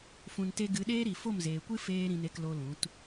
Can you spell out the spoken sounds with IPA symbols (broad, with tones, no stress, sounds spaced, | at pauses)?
f ũ˧ n t e˦ ɡ ɨ˨˦ ɗ eː˦ ɾ i˨ f o˦˨ m z eː˨ kʷ ɨ˦ f eː˦ ɾ ĩ˧ n e˧ k l o˧ l ũ˨˦ t